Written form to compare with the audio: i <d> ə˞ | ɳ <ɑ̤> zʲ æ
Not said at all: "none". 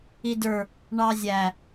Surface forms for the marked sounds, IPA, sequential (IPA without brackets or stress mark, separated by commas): d, ɑ